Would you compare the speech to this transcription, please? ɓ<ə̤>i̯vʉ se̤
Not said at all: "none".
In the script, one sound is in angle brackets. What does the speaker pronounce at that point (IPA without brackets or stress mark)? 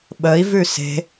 ə